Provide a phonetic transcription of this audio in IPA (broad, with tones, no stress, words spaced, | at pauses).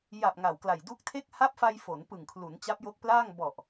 ja˨˩p̚ ŋa˨˩wkla˨˩j du˦˥k̚tʰe˥˩k̚ ha˦˥p̚fa˧j fo˩˦npɯ˨˩ŋkʰlu˩˦n t͡ɕa˦˥p̚jo˦˥k̚plaː˥˩ŋ bɔ˨˩ʔ